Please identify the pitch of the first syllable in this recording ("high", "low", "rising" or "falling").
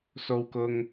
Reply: high